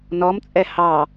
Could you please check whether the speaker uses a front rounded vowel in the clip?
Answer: no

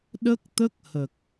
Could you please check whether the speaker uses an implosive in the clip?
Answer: yes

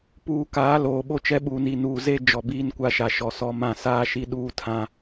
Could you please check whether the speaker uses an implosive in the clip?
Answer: yes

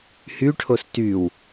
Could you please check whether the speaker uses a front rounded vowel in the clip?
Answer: yes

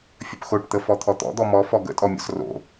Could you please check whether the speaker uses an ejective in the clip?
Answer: yes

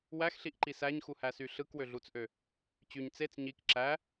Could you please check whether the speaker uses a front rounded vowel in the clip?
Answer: yes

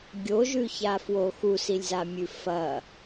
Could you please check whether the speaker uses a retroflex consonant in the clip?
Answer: no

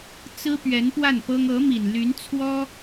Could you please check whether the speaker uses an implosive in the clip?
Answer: no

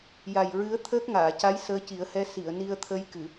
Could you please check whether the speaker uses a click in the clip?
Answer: no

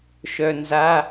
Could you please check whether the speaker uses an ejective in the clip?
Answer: no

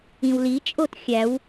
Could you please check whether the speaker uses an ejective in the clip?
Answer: yes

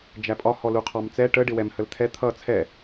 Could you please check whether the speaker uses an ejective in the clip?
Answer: yes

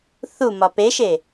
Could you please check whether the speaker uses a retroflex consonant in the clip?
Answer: no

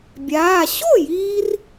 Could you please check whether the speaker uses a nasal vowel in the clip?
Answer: no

